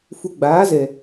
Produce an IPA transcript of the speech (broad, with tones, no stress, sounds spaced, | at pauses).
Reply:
f u˧ ɡ͡b aː˨˦ z ɛ˨